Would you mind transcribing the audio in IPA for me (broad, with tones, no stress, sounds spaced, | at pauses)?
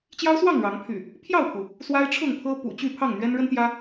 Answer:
t͡ɕ j ɑ˦ ʊ̯ s w ɑ˥˨ ŋ ɻ ɑ˨˦ ŋ pʰ y̰˨˩ | pʰ j ɑ˥˨ ʊ̯ pʰ u˩ | s w a˦ ɪ̯ ʈ͡ʂʰ ʊ˥˨ ŋ pʰ ɤ˦ p ṵ˨˩ t͡ɕ y˥˨ pʰ ɑ˥˨ ŋ n̪ ɥ ɛ˦ n ɻ ə˦ n t̪ j ä˦